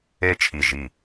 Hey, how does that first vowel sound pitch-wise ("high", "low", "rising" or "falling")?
falling